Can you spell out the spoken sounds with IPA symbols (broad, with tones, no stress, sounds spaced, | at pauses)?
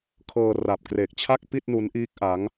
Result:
kʰ ɤː˧ r a˨˩ p̚ k r e˨˩ k̚ t͡ɕʰ a˥˩ k̚ p i˥˩ t̚ n u˦˥ n ʔ iː˦˥ k̚ ʔ aː˦˥ ŋ